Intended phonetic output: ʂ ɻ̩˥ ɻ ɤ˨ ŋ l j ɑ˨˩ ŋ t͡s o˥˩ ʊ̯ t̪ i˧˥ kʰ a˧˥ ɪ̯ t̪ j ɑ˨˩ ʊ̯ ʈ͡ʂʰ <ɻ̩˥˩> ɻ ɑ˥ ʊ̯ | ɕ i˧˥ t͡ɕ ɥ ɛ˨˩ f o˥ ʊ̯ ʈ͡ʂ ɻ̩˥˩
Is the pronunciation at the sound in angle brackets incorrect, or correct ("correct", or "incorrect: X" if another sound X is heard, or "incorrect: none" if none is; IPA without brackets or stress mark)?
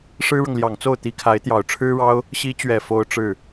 incorrect: ɻ̩˥